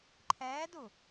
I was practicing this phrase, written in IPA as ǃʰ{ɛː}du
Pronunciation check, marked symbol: correct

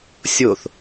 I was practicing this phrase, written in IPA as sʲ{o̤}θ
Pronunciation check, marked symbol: incorrect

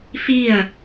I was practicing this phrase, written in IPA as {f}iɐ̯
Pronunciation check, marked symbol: correct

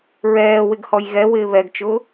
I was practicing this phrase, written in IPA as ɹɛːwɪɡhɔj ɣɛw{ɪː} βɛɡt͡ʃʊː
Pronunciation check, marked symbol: correct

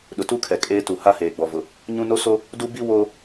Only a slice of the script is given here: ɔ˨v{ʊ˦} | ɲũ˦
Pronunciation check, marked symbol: incorrect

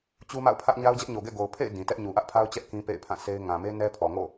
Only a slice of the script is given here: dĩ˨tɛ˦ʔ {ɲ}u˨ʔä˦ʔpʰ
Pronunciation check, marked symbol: correct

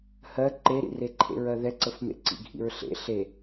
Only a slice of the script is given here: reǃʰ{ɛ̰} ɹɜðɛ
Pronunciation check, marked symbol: incorrect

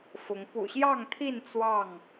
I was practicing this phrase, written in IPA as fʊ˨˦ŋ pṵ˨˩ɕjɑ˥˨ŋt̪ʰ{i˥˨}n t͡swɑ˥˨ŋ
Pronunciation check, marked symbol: correct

